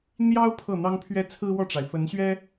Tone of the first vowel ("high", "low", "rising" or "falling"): high